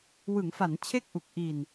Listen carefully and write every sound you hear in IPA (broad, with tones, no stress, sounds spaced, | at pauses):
w ɯ˩˦ ŋ f a˩˦ n t͡ɕʰ e˥˩ k̚ ʔ u˨˩ k̚ ʔ i˨˩ n